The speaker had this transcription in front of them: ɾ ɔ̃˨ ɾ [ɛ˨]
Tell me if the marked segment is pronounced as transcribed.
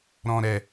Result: yes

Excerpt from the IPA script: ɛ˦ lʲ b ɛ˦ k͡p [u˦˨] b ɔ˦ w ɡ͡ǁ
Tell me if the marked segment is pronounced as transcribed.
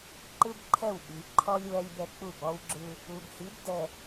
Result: yes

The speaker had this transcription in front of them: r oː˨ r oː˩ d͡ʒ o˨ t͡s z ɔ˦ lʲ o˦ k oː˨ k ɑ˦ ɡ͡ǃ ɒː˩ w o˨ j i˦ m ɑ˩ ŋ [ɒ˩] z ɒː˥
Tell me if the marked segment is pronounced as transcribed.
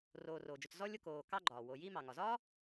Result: yes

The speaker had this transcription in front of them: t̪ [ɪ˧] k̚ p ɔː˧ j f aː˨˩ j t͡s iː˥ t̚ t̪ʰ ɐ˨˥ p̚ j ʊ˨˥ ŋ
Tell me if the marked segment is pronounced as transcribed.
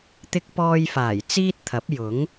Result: yes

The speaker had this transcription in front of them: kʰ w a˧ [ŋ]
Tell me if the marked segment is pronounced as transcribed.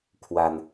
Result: no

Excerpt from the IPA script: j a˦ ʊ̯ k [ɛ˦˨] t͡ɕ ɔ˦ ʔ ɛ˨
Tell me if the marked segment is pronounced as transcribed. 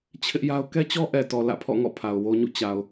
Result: no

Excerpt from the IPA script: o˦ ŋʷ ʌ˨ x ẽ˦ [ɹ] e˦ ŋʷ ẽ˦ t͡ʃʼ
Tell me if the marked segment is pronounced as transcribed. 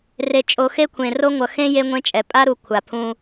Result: no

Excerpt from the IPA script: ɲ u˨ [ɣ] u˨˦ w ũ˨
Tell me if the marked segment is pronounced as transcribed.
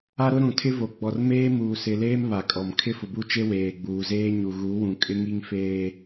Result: yes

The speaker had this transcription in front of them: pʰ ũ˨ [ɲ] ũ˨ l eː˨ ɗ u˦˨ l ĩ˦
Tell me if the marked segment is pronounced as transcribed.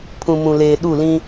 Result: no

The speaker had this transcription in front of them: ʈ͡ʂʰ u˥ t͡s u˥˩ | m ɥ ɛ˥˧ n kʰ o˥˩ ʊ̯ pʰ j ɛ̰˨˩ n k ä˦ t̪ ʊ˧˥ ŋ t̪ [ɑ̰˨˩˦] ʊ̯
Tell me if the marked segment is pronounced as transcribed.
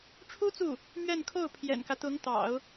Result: yes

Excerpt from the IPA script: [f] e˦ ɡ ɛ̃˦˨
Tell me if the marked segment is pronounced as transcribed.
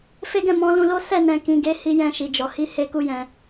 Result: yes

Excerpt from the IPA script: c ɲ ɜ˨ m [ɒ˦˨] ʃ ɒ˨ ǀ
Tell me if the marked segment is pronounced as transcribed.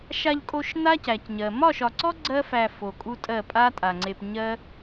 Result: yes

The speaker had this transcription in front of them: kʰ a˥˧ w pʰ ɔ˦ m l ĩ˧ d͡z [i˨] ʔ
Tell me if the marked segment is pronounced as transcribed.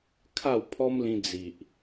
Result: yes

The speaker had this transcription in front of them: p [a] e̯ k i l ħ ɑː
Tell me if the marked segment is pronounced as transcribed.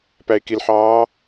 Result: no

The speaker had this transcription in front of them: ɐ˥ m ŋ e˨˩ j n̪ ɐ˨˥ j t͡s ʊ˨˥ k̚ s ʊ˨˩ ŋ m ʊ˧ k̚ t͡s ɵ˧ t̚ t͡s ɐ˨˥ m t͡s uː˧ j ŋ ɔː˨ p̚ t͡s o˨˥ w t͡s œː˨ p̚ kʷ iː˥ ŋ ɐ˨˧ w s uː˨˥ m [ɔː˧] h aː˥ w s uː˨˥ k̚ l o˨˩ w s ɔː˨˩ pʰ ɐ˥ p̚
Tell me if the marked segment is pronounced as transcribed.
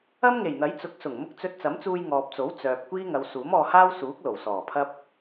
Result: yes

